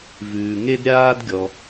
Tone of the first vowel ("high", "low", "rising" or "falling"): low